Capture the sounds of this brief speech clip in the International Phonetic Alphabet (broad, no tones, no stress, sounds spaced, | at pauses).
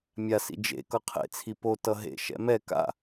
mʲ a s ḭ d͡ʒ ḛ k ʌ qʰ ḛ t͡sʰ i p o t ʌ ɦ ḛ ʃ ɛ̰ m ɛ k a̰